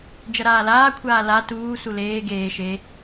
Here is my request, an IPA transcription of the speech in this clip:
d͡ʒʌɾaːlaːkʷʰaː la tuː suleː ɡeː ʃe

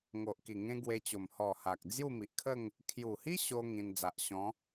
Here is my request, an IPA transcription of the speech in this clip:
ŋo˨ʔki˨˩ŋẽ˧ ɡwe˧t͡ɕo˨˩m hɔ˨˩ ha˨k̚d͡zju˥˧mi˨ʔkʰə˥˧ŋ | kʰju˨˩hi˦ ɕo˦ ŋĩ˧n d͡za˨ʔɕɔ̃˨˦

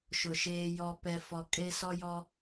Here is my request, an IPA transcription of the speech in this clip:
ʃʊ˨ʃeː˦jɔ˦ pɛ˦fɔ˦ kʼe˦sɔ˦ jɔ˦

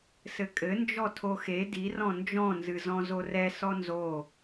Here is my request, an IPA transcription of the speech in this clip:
sɘkʼɘ nd͡ʒɔtʰoxe di rɔ̃nd͡ʒɔ̃ nzɨzɔ̃zorɛ sɔnzo

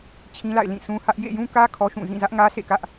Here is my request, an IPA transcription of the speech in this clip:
t͡ɕʰĩ˦la̰˦˨ɪ̯ lĩ˦˨sũ˦hä˦ʔ jḛ˦˨jũ˦kä˦ kʰɔ˦ʃũ˦˨ zĩ˦˨zä˦ʔ ŋä˦sḛ˦˨kä˦ʔ

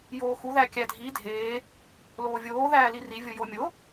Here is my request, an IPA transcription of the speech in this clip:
joːxu ðækʲædʱi dʱeː | loːvʲoː ðæːliri vʲojomʲo

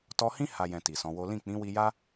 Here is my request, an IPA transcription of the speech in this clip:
tɔ˧hĩ˦ ha˧ jɛ̃˧ti˨sɔ̃˨˦wo˦ lĩ˦˨k͡pĩ˨˦wi˧ja˦

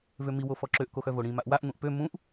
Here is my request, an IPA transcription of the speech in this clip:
vømi wofɔǁøʔ koxœvoɽĩ maʔwaʔ ŋũʔpø mũʔ

